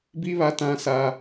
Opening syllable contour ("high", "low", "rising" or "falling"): high